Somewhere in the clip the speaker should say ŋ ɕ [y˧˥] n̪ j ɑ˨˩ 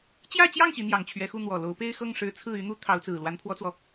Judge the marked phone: incorrect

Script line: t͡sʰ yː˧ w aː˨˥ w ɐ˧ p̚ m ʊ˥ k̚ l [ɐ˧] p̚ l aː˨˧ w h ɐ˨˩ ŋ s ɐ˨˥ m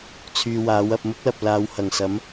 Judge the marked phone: incorrect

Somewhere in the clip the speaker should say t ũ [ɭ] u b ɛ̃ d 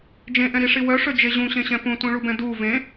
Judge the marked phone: correct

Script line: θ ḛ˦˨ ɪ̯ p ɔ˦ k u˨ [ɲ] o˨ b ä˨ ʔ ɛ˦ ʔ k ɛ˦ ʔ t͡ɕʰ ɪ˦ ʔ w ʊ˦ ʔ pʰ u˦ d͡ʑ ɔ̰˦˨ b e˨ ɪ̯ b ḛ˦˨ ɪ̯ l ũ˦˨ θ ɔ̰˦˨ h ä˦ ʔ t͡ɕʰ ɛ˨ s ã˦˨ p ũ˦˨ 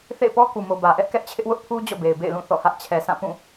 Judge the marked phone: incorrect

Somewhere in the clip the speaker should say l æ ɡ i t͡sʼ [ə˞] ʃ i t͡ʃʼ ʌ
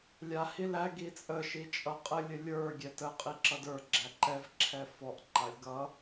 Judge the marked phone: incorrect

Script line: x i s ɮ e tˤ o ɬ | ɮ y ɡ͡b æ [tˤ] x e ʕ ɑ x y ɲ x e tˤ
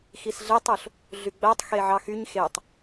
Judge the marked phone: correct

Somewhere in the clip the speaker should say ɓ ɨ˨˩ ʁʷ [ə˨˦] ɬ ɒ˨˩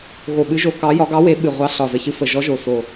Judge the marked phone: incorrect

